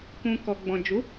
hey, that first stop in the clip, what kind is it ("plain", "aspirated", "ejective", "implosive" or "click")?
plain